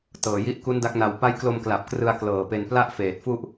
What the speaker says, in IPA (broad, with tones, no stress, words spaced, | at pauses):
tɤː˨˩ji˦˥ʔ ku˦˥nda˦˥k̚na˨˩w pa˦˥jklo˧m kla˨˩p̚krɯ˧a̯ klɤː˨˩pe˧n pla˥˩ʔfeː˨˩t̚ fu˥˩ʔ